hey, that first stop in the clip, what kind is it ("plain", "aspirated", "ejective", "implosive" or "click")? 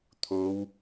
aspirated